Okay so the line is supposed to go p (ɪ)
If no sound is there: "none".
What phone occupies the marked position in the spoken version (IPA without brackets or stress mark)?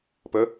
ə